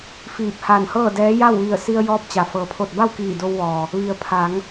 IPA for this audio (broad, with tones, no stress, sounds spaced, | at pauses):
f iː˧˩ p̚ h a˧˩ n h ɤː˥˨ d ɛː˧˥ j a˥˨ w ʋ i˧˩ ə̯ s i˧ ə̯ j ɔː˧ p̚ t͡ɕ a˩ f ɤː˩ pʰ o˧˩ t̚ b a˥˨ w k iː˧˩ d o˧ w ʋ ɔː˩ | ʋ i˩˧ ə̯ pʰ a˩˧ ŋ